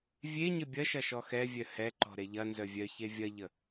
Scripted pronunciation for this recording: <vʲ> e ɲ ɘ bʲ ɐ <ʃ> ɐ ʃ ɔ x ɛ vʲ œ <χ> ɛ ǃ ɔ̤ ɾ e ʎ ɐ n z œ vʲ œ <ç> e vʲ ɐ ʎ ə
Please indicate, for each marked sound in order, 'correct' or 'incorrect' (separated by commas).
correct, correct, incorrect, correct